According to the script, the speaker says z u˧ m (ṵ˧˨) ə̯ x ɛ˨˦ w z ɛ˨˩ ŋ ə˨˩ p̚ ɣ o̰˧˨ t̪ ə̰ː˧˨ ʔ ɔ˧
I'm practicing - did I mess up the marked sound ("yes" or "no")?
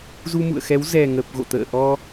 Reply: no